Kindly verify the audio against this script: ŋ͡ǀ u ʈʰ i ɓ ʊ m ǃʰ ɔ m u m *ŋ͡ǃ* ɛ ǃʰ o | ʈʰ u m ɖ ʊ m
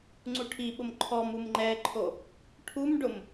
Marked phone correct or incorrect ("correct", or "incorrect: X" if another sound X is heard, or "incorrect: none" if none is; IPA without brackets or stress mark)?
correct